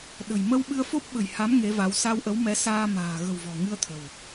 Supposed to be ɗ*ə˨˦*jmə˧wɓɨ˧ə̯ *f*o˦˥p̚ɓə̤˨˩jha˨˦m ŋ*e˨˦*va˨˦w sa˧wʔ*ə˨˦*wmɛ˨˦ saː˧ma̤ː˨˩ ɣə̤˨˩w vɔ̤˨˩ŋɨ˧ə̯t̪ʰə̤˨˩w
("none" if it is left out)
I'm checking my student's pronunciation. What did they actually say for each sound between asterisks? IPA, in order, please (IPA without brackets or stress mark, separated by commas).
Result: ə̤˨˩, f, e˨˦, ə˨˦